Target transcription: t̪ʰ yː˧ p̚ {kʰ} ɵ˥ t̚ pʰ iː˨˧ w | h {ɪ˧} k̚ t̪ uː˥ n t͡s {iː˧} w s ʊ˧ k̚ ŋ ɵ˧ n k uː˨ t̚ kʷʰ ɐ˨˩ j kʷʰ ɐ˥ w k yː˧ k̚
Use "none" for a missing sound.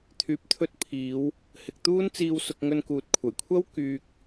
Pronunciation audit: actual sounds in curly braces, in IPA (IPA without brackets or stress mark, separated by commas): t̪ʰ, ɪ˨, iː˧